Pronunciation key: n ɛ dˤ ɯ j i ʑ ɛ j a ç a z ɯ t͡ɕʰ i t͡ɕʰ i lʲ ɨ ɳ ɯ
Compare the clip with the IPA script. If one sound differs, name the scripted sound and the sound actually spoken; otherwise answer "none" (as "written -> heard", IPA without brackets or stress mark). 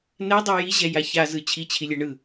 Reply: ɨ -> ɛ